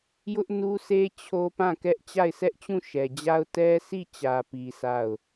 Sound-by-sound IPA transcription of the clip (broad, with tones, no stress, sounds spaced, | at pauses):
j ʊ˦ ʔ n u˦ s e˦ t͡ɕʰ o˦ p ã˦˨ k ɛ˦ ʔ t͡ɕ a˦˨ ɪ̯ sʰ ɛ˦ ʔ t͡ɕ ũ˦˨ ʃ ɛ˨ d͡ʑ a˦ ʊ̯ t ɛ˦ sʰ i˦˨ t͡ɕ ä˨ p i˨ sʰ a˦˨ ʊ̯